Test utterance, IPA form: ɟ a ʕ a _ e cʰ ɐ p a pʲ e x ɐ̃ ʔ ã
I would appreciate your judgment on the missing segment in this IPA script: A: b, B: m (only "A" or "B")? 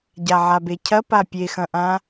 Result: A